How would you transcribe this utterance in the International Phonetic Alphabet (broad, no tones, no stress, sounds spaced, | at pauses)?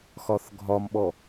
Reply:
x ɒ θ ɡʱ ɒ m ɓ ɔ